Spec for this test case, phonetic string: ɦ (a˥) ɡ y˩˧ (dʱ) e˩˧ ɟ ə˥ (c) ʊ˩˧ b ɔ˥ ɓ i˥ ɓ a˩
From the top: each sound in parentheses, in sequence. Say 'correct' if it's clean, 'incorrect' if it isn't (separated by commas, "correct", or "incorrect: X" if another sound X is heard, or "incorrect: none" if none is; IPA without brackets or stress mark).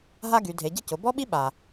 correct, correct, correct